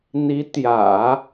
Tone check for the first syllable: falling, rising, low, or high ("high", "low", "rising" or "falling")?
rising